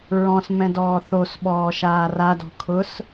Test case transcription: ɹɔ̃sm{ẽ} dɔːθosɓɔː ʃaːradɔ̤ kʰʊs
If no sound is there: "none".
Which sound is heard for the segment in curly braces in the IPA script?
ɛ̃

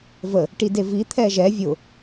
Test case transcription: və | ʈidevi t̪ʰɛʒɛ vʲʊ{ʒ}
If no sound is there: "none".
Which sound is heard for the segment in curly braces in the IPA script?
none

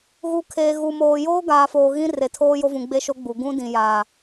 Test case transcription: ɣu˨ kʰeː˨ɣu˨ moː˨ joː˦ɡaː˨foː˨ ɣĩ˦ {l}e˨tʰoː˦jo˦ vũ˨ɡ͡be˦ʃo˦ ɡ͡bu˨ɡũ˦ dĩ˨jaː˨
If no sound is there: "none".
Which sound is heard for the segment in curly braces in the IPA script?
r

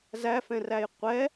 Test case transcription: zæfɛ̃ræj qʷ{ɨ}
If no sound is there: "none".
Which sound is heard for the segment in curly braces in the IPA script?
ɛ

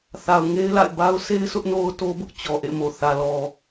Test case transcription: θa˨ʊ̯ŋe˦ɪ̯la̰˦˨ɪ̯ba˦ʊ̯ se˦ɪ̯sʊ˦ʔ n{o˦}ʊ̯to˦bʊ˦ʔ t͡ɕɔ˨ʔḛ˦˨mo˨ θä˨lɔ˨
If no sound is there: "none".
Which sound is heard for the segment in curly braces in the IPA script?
o˦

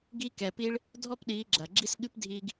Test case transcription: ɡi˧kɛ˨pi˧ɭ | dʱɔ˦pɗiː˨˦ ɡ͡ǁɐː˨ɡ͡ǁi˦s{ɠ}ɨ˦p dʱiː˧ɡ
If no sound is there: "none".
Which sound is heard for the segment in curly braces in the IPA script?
ɠ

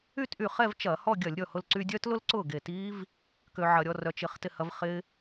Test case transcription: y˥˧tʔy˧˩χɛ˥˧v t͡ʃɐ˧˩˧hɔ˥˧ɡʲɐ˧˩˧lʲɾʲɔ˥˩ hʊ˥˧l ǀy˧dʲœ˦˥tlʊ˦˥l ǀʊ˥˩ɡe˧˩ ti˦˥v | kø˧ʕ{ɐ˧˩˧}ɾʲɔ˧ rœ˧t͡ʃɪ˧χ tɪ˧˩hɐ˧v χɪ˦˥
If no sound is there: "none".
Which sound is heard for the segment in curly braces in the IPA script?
ɐ˧˩˧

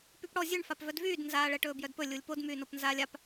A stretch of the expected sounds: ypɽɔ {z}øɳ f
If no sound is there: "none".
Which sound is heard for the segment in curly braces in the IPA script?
zʲ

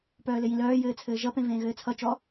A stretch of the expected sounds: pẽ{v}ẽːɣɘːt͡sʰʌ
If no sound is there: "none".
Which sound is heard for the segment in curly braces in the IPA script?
v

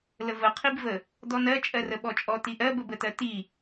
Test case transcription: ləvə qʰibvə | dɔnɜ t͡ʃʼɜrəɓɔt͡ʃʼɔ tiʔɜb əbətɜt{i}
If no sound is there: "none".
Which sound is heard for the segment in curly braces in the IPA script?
i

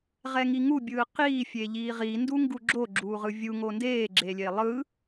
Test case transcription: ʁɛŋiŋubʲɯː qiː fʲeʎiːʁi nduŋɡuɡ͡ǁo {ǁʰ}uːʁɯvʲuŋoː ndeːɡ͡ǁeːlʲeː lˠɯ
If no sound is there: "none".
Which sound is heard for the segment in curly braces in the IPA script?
ɡ͡ǁ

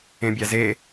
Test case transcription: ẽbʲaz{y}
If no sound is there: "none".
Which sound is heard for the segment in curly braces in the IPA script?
e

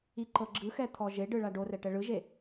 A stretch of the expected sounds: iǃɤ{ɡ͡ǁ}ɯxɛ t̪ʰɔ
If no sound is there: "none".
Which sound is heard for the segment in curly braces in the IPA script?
ɡ͡ǁ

